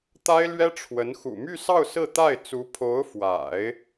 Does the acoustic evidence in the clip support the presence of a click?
no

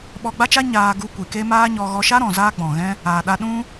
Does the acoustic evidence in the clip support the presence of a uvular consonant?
no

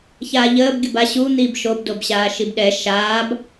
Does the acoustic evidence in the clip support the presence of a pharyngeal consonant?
no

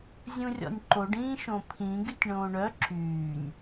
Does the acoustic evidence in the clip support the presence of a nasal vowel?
yes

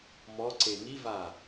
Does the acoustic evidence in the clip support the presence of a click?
yes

